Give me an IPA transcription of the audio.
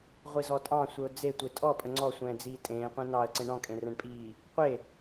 ʁʷ i z ɔ tʼ ɑ̃ sʷ ə ʊ̯ d͡z e tʷ e tʼ ɔ pʼ ə ŋ͡ǀ ɔ sʷ ɛ̃ː d͡z iː tʼ ẽː qʷ ẽ n ɑ ə̯ ǀ ẽ ɳ ɔ̃ kʼ ẽ r ɛ̃ ɳ pʼ iː | qʷ e

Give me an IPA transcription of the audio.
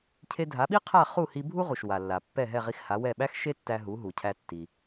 cʰ e˧ dʱ a˩˥ ɓ i˥ qʰ a˥˩ χ u˥˩ h i˧ bʱ u˥ ʁ u˩ ʃ w a˩ lː a˩ pː ɛ˥˩ ɦ ɛ˥˩ ʁ i˧ x h a˩˥ w ɛ˥˩ ɓ æ˥ x ʃ e˥ tː æ˧ ɦ u˩˥ ɦ u˩ cʰ æ˧ tː i˩

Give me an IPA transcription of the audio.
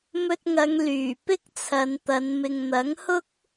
m ɵ˧ t̚ ŋ ɐ˨˧ ŋ l yː˨˩ p ɪ˥ k̚ t͡sʰ ɐ˨˧ n t̪ ɐ˨˧ n m ɪ˨ ŋ n̪ ɐ˨˥ ŋ h ʊ˥ k̚

